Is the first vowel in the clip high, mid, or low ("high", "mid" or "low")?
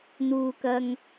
high